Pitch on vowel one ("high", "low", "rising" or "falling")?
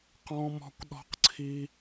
high